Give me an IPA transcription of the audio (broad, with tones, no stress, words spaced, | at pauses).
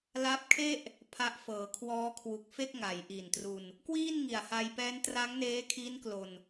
la˦˥p̚kʰe˥˩ʔ | pʰa˦˥ʔ fɤː˩˦kʰwɔː˦˥kʰwu˨˩k̚fe˥˩k̚ ŋa˩˦jʔi˨˩ntru˧n | kwiː˥˩nŋi˨˩a̯ ha˧jpɛː˦˥n tra˦˥ŋneː˦˥kʰi˦˥n klo˧n